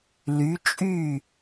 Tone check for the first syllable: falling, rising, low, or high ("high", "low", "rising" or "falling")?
rising